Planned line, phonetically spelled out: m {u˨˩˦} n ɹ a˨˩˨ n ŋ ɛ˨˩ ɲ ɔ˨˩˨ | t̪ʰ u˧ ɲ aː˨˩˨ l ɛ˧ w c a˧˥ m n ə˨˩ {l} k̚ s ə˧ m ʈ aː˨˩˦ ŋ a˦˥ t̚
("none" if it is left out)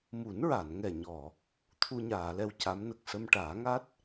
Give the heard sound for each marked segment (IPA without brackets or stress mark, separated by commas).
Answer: u˨˩˦, none